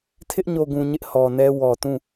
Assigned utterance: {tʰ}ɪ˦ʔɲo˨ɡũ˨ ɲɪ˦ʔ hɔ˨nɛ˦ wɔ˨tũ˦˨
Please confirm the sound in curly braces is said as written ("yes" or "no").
yes